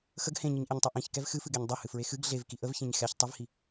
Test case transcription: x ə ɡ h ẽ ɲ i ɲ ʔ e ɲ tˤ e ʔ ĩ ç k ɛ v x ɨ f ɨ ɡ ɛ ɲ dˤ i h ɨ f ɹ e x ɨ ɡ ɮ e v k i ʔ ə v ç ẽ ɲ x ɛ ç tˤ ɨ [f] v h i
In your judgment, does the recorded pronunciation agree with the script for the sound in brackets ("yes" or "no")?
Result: no